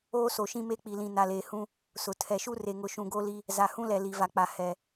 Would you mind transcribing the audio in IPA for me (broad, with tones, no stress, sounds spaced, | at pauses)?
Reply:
oː˦ s o˨ ʃ ĩ˦ m e˦ k͡p i˨ l ĩ˨ n a˨ l eː˨ h ũ˦ | s ʊ˨ tʰ ɛ˨ ʃ u˦ r e˨ ŋ ʊ˨ ʃ ũ˨ ɡ o˦ l i˦ | z a˨ h ũ˦ l ɛ˨ l i˨ v a˨ k͡p a˨ h ɛ˨